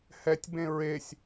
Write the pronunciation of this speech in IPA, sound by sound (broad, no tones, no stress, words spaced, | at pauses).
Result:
hɛtʲbẽ ɹesʲ